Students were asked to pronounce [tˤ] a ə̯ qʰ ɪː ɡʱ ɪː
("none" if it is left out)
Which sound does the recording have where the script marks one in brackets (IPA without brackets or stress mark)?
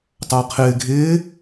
tˤ